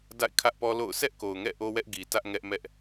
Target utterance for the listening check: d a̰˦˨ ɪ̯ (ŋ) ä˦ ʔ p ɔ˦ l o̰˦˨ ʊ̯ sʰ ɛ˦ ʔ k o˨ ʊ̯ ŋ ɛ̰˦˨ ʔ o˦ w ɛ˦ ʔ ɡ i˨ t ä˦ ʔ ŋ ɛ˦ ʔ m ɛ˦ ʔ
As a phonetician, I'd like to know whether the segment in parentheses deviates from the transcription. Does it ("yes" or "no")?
yes